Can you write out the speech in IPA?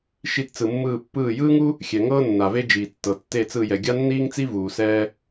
ʃi˧˩tt͡sɯ˩mːɯː˧˩ pːɯː˧˩jɯː˥ŋu˥ | xʲɛ˩ ŋɤː˥nːa˩ ve˥d͡ʒiː˩tːɤ˩ tːe˧˩t͡sɯ˧˩jɛ˩ ɡʲa˥nːiː˥ŋt͡si˥ vuː˩sɛː˥

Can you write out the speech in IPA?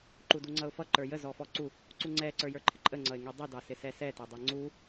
ǃuduŋ͡ǀʌʊ̯fʌ ǃə˞jə zɔfɔǀu | ǀuŋ͡ǀɛ ǀə˞jə˞ǃʰɪǃʼə ŋ͡ǀʌɪ̯ŋidˤi dɑsɪsɛsɛ tɛdˤɛŋ͡ǀu

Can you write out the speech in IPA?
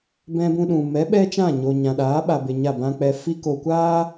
bɛ̃˧ bũ˧ɗũ˨ mɛ˨˦ ɓɛ˦t͡ʃã˦˨ɲo˨ ɲã˨ɗaː˨˦ɓa˨ be˨ ɲa˦˨bã˦k͡pɛ˧ fi˧ko˨kʷaː˦

